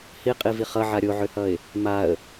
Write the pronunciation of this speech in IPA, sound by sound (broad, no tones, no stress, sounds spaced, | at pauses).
h i qʼ i v i χ ʌ ʕ a ɾʲ o ʕ ø h ʌ ɪ̯ | m a ə̯